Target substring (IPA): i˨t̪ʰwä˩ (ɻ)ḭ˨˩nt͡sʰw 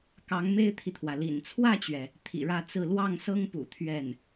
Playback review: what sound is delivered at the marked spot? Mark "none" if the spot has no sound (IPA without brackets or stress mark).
l